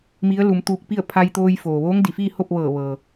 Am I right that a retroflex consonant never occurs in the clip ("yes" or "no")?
yes